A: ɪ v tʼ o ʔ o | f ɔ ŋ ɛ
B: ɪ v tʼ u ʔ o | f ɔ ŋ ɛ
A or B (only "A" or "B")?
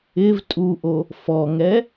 B